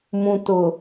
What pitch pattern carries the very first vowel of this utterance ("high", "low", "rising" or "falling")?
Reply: low